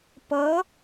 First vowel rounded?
no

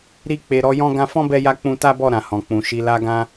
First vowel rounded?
no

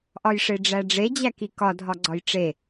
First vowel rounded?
yes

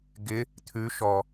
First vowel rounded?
no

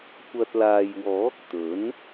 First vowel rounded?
no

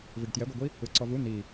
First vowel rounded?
no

